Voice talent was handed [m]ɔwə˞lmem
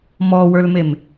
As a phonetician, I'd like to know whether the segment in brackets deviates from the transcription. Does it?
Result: no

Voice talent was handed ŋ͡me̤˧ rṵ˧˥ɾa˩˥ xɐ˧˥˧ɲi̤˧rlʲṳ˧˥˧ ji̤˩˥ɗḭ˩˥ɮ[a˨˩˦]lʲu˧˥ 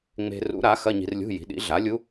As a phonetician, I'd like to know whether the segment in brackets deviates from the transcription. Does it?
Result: yes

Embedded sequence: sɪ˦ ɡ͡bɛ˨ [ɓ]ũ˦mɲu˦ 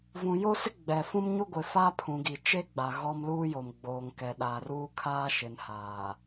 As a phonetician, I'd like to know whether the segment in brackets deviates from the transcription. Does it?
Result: yes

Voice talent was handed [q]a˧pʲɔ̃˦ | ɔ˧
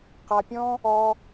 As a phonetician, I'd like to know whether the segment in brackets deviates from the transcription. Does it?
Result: no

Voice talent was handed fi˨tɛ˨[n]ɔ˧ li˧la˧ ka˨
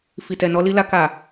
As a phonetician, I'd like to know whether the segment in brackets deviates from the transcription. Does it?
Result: no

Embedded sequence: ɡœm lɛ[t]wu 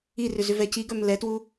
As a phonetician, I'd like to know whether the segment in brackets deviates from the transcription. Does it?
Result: no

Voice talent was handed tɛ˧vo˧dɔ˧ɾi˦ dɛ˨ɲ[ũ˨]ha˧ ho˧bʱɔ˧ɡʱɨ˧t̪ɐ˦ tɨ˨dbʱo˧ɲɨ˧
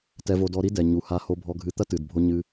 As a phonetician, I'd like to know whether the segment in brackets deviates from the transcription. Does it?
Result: yes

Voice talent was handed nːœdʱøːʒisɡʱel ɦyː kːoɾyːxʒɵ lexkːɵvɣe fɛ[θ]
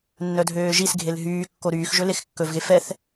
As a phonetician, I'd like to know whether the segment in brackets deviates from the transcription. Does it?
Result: no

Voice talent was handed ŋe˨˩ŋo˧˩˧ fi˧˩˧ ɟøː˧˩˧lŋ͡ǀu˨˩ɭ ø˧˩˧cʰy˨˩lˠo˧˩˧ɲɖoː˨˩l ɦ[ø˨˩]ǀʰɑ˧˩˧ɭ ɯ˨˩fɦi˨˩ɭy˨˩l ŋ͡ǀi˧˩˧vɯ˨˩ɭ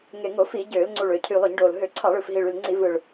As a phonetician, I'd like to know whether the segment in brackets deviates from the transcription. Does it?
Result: yes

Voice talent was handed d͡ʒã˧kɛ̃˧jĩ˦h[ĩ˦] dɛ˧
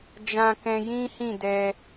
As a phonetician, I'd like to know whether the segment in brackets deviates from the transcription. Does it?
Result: yes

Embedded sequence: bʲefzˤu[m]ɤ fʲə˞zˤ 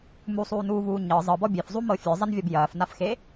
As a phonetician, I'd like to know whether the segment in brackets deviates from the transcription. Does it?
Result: no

